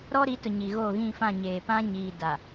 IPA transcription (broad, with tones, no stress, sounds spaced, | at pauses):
ɾ ɔ˦ ɾ i˨˦ t ʊ˨ ɲ i˨ ɣ oː˦˨ ɣ ĩ˦˨ f ã˦˨ ɲ eː˨ p ã˦ ɲ iː˨ d a˨